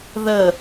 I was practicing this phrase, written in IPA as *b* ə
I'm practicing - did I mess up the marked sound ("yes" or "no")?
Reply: yes